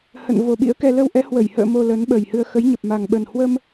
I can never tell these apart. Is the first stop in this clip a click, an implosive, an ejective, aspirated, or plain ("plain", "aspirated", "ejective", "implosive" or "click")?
implosive